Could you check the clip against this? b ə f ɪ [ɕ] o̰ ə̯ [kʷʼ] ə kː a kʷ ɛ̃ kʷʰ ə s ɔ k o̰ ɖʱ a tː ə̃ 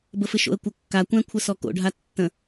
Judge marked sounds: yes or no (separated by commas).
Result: no, no